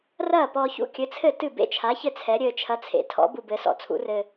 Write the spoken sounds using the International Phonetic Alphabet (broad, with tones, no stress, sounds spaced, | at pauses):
r ɐː˥˩ p ɔ˧ ç ṵ˥˩ kʲ ɘ˨˥ t͡sʰ ɘ˥˩ t ɨ˥˩ b ḛ˥˩ t͡ʃʰ a˨˥ ç ɘ˥˩ t͡sʰ ɛ˨˥ ɾʲ ɘː˧ t͡ʃʰ ɐ˨˥ t͡sʰ ḛ˩ tʰ ɔ̰˨˥ b u˧ b ɘ˨˥ s ɔ̰˧˩ t͡sʰ ṵ˨˥ r ɘ˧